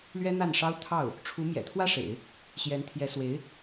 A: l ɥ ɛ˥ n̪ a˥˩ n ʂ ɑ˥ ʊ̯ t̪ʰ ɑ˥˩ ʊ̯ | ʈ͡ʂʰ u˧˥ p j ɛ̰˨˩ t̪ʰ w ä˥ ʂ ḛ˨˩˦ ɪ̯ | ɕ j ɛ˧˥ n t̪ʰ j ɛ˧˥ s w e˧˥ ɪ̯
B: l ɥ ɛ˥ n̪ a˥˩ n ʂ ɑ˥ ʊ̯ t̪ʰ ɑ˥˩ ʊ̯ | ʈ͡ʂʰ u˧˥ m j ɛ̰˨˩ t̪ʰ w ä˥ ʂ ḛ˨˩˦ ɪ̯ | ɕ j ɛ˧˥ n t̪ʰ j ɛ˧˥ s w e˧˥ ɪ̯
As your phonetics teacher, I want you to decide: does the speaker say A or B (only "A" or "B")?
B